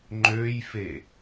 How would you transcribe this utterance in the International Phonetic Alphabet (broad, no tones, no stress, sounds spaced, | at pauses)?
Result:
ŋ͡ǃ ø j f e